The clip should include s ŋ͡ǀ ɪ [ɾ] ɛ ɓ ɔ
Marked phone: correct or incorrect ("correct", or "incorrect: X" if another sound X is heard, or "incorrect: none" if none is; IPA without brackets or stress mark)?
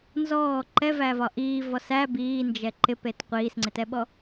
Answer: incorrect: t